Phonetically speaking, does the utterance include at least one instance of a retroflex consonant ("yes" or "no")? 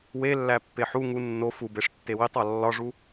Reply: yes